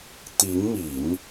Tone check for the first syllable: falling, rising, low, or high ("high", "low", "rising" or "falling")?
rising